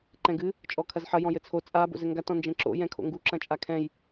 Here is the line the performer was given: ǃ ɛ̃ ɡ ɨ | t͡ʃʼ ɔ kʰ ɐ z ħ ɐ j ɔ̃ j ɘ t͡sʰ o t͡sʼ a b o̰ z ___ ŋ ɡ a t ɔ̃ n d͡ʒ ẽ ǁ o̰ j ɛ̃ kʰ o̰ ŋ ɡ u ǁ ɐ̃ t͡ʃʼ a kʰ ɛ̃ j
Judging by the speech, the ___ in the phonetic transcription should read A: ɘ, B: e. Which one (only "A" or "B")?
A